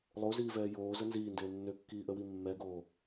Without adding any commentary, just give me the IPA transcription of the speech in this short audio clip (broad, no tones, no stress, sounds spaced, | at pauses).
lˠ o z iː v ɛː j oː z ə n z iː n d eː nː ø kː iː ʔ ə w i mː ɛ ɡ oː